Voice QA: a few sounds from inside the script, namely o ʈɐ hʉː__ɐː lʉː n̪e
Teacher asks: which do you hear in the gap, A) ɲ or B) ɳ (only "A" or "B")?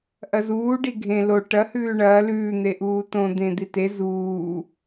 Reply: B